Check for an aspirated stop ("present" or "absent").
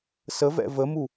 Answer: absent